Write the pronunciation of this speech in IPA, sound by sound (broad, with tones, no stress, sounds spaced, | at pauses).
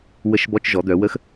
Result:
w ə˧˥˧ ʃ b ɔ˧˥˧ t͡ʃ ʒ ɔ˩˧ d̪ œ˩˧ w ə˧˥˧ x